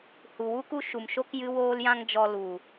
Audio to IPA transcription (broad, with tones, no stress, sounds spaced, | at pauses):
h u˨ w u˦ k u˦ ʃ u˨ m ʃ o˦ k j ɨ˦ w oː˦ l j ã˦ ŋ d͡ʒ ɔ˧ l u˨